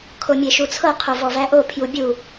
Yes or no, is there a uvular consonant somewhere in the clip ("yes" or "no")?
yes